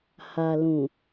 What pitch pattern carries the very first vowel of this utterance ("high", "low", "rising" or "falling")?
low